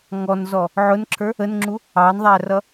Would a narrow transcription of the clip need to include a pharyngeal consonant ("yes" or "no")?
yes